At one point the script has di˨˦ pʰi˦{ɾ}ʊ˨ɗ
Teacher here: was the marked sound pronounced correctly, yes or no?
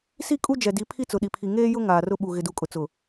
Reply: no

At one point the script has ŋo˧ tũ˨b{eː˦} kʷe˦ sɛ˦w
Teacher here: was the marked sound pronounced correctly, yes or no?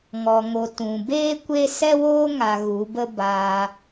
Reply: yes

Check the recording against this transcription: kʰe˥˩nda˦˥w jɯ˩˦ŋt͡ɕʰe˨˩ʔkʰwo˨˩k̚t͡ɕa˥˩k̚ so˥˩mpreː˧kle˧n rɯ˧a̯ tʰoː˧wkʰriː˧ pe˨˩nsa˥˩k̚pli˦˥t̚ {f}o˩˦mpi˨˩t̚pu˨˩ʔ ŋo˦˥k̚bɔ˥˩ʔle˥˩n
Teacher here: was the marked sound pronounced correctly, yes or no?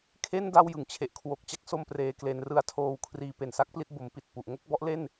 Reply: no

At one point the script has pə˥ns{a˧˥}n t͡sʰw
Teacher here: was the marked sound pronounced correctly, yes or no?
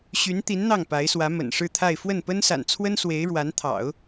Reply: no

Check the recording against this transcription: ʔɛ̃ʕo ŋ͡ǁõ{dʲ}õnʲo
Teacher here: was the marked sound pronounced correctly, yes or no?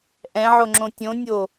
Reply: no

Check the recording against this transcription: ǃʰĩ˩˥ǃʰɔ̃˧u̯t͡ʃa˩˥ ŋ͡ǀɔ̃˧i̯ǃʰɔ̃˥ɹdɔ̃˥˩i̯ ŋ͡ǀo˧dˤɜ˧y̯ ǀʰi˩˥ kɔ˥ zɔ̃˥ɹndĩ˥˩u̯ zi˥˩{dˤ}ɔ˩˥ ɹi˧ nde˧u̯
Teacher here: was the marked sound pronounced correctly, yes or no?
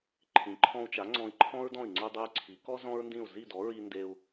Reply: no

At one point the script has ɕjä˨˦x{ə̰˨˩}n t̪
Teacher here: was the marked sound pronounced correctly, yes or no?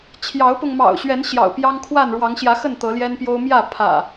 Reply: no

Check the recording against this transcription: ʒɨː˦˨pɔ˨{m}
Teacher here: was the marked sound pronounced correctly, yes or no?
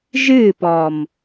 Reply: yes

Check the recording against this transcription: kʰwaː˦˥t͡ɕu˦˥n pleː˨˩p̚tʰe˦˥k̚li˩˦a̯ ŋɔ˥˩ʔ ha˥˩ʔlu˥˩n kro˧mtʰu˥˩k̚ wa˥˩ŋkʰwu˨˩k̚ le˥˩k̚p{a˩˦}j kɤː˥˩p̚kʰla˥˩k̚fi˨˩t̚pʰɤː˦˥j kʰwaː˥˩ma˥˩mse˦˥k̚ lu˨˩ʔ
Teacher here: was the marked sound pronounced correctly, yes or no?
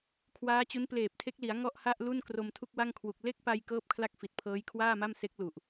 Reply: no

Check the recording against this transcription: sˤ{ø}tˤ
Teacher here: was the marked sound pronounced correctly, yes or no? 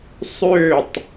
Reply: yes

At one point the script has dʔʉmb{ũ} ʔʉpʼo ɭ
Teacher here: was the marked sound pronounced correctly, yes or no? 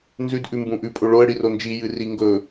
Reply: yes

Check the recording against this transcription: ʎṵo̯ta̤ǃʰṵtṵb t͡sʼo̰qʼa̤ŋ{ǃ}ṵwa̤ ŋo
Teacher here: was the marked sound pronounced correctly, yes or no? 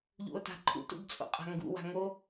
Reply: no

